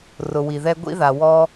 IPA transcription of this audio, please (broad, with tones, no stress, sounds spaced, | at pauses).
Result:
r ʊ˨ w i˨ ð ɛ˧ ɡʷ ḭ˧ ð a˨ w ɔ˧